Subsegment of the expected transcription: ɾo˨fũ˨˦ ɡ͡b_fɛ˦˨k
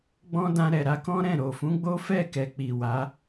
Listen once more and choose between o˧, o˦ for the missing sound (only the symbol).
o˦